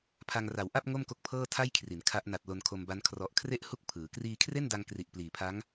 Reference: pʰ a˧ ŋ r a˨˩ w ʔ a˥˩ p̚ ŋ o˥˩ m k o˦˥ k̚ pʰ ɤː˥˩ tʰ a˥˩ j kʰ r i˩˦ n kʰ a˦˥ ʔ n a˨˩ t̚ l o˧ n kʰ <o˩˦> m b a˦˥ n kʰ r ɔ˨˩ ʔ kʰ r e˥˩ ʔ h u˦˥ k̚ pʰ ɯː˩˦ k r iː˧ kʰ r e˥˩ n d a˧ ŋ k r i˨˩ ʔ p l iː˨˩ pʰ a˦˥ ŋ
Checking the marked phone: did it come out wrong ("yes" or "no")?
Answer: yes